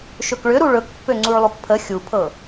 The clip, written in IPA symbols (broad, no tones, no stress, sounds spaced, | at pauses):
ʃ ɵ k ɭ ʏ ɾ u ɭ ɵ k pː ø ŋ͡ǀ u ɭ lˠ u k pʰ ə xʲ u pʰ ɤ